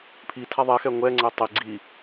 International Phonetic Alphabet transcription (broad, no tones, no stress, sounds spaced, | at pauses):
pʰ i tʰ a ðˤ ɛ x ɛ ŋʷ ɛ ŋ͡ǀ ɛ tˤ i ɡ͡ǀ i